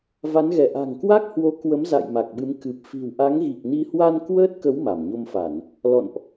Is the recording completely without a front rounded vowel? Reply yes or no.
yes